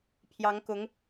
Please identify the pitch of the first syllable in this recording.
rising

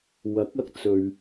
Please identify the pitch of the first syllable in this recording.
rising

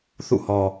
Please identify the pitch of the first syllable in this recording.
falling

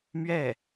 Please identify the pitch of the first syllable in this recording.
falling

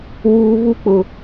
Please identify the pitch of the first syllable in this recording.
low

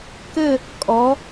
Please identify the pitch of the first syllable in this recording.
falling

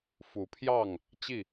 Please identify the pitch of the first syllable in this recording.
rising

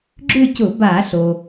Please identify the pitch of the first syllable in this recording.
falling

